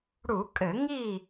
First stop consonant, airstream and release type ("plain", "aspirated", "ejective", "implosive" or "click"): ejective